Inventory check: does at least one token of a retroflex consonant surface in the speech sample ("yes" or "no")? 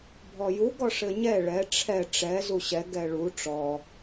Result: yes